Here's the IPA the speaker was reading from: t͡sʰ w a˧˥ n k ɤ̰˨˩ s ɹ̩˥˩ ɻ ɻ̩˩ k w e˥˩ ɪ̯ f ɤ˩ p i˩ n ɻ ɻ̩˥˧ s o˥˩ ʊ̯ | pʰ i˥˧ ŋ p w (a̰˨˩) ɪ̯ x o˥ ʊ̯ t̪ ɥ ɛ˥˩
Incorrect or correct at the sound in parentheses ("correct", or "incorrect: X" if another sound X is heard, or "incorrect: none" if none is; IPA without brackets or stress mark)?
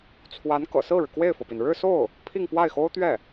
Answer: incorrect: a˥˩